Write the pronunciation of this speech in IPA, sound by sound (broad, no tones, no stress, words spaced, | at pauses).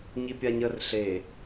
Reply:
ɲipʲaɲər ɬe